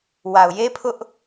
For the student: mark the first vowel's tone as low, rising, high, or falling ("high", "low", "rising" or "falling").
low